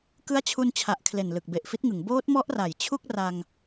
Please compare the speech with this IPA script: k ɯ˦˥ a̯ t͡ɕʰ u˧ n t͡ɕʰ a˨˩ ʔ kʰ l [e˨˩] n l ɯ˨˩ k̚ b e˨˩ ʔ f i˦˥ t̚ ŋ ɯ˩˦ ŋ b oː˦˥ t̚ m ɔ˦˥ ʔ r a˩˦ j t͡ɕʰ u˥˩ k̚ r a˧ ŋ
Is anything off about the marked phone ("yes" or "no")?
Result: no